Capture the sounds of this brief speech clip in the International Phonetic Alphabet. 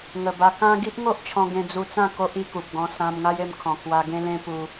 ŋə˨˩ba˧kã˦ ɡi˦ʔ ŋo˦ʔt͡ɕʰɔ̃˧ ɡẽ˧d͡zu˧t͡sã˥˧ ko˦ʔi˧ku˨p̚ɡɔ̃˧ sã˧m ŋa˦je˧mkʰɔ̃˨˩kʰwa˧ ɡẽ˦lẽ˦ pu˧

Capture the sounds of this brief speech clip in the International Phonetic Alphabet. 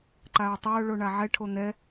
ǃaʊ̯tˤaʊ̯ ɭoɳaʕɛʈʰo n̪ɛ

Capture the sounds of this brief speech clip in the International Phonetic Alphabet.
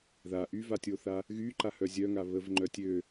ða ʔyvatʲoθa | ɣyǃahœ zʲœŋa βəvŋ͡ǃœ tʲø

